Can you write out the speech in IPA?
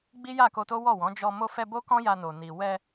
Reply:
ɡ͡bi˦ja˦˨ko˧to˦ wɔ˦˨wɔ̃˨˦ d͡ʒɔ˧ mo˧fɛ˧ bo˦kɔ̃˦ja˧no˨ ni˨ wɛ˧

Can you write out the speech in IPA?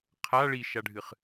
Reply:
qʰa ɭiʃaɖʱɨχ

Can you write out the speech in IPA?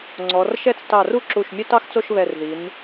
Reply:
ŋ͡ǀɔ˩˧rʃɛ˥˧t͡s tɑ˧˩ru˥ǁu˧˩ʃ mʲœ˥tɑ˥xt͡so˥˧ʃβɛ˧˩r ði˩˧n

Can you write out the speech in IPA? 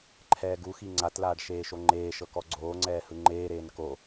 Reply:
ǃʰɛːɡuxi ŋ͡ǀatlaːɖ ʃeːʃoŋ͡ǃeːʃɤ kɔɡ͡ǀoːŋ͡ǀɛː hɯŋ͡ǃeːɾeːn ko

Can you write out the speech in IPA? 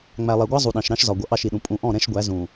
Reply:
ŋ͡mæ˨lˠɛ˨ɡʷɑ˦ zˤu˨ɗɑ̃˨ʃɾɑ̃˦ʃzɒ˨ ɡʷʌ˨ʔɑ˦˨ʃi˨ɗũ˨ pʼũ˨ʔɔ̃˦˨ ɾɛ̃˦ʃɡʷæ˨˦ zũ˨

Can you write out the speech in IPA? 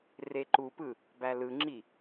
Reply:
reǃupɯ | bælɯŋ͡ǁi

